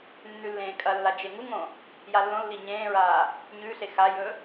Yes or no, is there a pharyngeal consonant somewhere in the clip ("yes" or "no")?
no